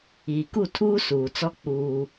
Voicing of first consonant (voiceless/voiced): voiceless